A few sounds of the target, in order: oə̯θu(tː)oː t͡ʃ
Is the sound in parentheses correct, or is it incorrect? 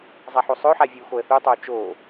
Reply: incorrect